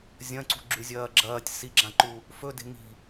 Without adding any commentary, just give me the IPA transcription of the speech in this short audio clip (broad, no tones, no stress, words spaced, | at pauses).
zʲɐ̃ǀṳɡ͡ǁʉzʲɐː ɡ͡ǁɐːtʲ siɡ͡ǁãǃu | fɵde̤ ŋi̤